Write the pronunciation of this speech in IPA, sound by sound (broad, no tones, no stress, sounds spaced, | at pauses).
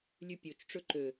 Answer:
lʲ ʉ pʲ o t͡ʃ ʈ͡ʂ ɵ ǃ ø